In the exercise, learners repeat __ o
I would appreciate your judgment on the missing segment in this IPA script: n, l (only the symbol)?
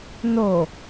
n